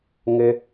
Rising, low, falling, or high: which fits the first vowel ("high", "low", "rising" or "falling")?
low